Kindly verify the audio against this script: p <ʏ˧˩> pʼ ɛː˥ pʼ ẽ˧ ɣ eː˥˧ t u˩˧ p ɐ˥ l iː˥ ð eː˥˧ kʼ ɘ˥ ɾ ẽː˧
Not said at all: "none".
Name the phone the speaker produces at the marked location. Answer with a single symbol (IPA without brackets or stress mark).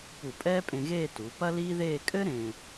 u˧˩